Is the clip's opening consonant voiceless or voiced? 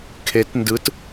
voiceless